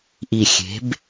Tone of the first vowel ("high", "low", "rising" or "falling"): low